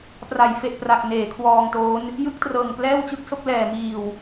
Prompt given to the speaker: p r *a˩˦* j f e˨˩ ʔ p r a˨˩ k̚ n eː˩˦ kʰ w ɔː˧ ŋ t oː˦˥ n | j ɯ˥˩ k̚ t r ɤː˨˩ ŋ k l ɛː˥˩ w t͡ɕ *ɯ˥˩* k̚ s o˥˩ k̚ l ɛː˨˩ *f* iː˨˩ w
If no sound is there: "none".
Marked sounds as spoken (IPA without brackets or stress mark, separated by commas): a˩˦, ɯ˥˩, m